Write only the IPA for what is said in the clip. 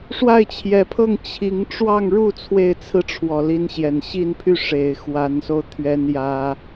ʂ w a˥˩ ɪ̯ t͡ɕʰ j ɛ˧˥ pʰ ɤ˥˩ ŋ t͡ɕʰ i˧˥ ŋ ʈ͡ʂ w ɑ˥˧ ŋ ɻ u˥˧ t͡sʰ w e˥˩ ɪ̯ t͡sʰ ɹ̩˥ ʈ͡ʂʰ w ɔ˨˩ l i˧˥ n ɕ j ɛ˨˩ n ɕ i˥˧ n pʰ y˥˩ ʂ e˨˩ ɪ̯ x w a˧˥ n s o˧ ʊ̯ t̪ʰ ɥ ɛ˥ n j ä˥

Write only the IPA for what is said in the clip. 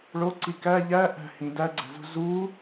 ɭ o ǀ i k æ ʎ æ ʔ æ̤ h ĩ d æ ɡ͡ǀ æ̤ z ṳ z u

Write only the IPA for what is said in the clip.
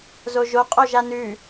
z o ʒ o qʼ o ʒ a n ʉ

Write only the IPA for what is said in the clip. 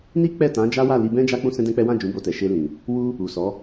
n i˦ k͡p ɛ˦˨ t ã˨˦ d͡ʒ a˦ w a˦˨ l i˧ b ɛ̃˦ d͡ʒ a˦ k͡p ũ˦ s ɛ̃˦ d ɛ̃˦ k͡p ɛ˦ w ã˦˨ d͡ʒ ũ˨˦ b o˧ t ɛ˨ ʃ e˧ l ĩ˨ | w u˦ | u˨ s ɔ˨˦

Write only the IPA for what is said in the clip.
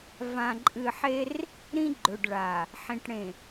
v ã˨ ǃʼ ɨ˨ ħ e˦ r | ɾ ĩ˦ ɡ͡ǃ ɵ˨ ɖ ɭ a˨ | ħ ĩ˨ ʈ ɽ ẽ˨

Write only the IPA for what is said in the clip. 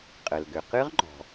qʼ ə˩ l ɡ ʏ˩ q ɨ˦˥ ʁ ŋ͡ǃ ɔ̤˩

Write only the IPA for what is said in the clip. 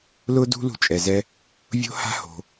l ʊ˥ d ṳ˥ l ṳ˧ t͡ʃʼ ɛ˩ z ɛ˧ | vʲ o̤˥ h a̤˥ h o̤˩

